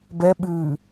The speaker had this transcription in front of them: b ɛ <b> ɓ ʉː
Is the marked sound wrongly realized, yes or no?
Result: yes